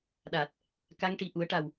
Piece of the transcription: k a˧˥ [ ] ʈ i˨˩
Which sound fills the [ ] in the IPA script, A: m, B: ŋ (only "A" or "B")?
B